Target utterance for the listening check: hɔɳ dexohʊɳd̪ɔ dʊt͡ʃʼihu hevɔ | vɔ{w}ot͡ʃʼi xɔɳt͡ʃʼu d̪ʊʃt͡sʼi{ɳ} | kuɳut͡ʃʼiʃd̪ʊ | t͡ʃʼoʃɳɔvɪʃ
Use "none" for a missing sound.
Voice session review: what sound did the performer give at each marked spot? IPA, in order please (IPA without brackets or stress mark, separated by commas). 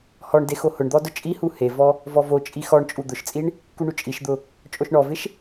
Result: v, ɳ